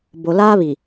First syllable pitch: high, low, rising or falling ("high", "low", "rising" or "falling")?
low